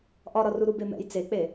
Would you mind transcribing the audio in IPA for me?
ʔ ɒ ɾ ɒ r u ɾ u b e m ɛ̰ j t͡s e k͡p e

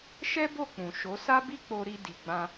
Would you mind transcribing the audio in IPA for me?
ʃ ɛ˦ b o˦˨ k͡p ũ˨ ʃ o˨˦ s a˦ b i˦ k͡p o˧ ɾ i˧ d i˨ ɡ͡b ã˧

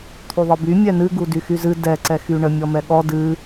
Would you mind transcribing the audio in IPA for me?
t̪ʰ y ðˤ ɨ b y mʲ ɛ n ɨ ɡ u d y x y z ɨ d ɛ ǀ ɛ x y ɳ ə mʲ ɔ m ɛ ɠ ɔ d ɨ

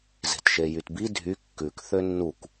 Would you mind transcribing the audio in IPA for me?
z e̤ t ʃ e j y t b i dʱ y kː ʉ k θ ø nː u k

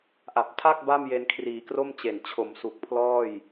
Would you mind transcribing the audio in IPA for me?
ʔ a˨˩ p̚ tʰ a˥˩ k̚ b a˥˩ m j e˧ n kʰ r iː˩˦ k r o˥˩ m t͡ɕ e˨˩ n t͡ɕʰ o˩˦ m s u˨˩ k̚ pʰ l ɔː˥˩ j

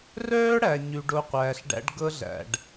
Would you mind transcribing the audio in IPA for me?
r œː˦ ɽ æ˨ ɲ ʉ˧ ɖ o˦ qʷ æː˧ ɬ ɖ æ̰˦ ɖ ɡ ɤ˧ ɮ æ̰˨ ɖ

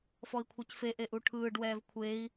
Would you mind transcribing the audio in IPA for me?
f ɔ i̯ kʷʰ ɛ c f e ʔ e ʔ u ʈʰ ɯː ɖ w ɛː v kʷʰ e i̯

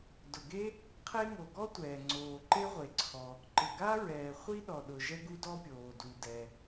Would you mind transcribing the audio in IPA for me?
d ʊ˩ ɡ e˥ | qʰ e˥ ŋ o˩ ɡ ɔ˥ tʷ ɛː˩ ŋ͡ǀ oː˩ ǃ e˥ ʁʷ e˩ ǀʰ ɔ˩ | ǃ ɪ˩ ɡ a˥ ɹ ɛː˩ χʷ i˥ ɗ ɔ˩ ɗ ʊ˩ ʒ ɛ˥ ɡ u˥ d ɔ˥ pʲ oː˩ d u˩ d ɛ˩

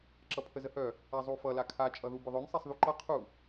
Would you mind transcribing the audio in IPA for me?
ǁ ʌ pʰ ə z ə h œ | a zˤ u f ʌ l a kʰ a t͡ʃʼ ʌ ð u b ʏ ðˤ œ n sˤ e sˤ ð u ǃ ʌ qʰ u

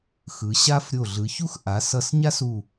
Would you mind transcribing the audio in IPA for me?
x ɯ˩˧ ɕ a˥ f ɾʲ o˧˩ ɮ ɯ˩˧ ç u˥ x ʔ a˩˧ s ʌ˧˩ s ɲ a˥ s u˧˩

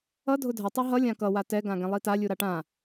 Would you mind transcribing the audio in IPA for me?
ʌ dʱ ʊ dʱ ʌ tˤ i ɦ ʌ lʲ ã k ʌ w a t ɛ ɡ ã ɡ ɛ̃ lˠ i t a lʲ u ɾ a ʈ ã

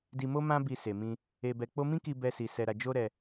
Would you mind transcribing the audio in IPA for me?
d i˧ m o˦ m ã˦ b i˧ s e˨ m ĩ˧ | e˧ b ɛ˧ k͡p o˦ m ĩ˦ k i˧ b ɛ˧ s i˧ s ɛ˧ ɾ a˧ d͡ʒ o˦ ɾ ɛ˧

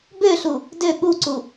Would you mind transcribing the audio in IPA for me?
b ø ɬ u | d ø ɠ u ǀ u

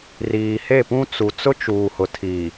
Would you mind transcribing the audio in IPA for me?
r iː˨ h e˦˨ p ũ˦ t͡s u˨ t͡s ʊ˦ t͡ʃ u˨ h ʊ˨ tʰ iː˨

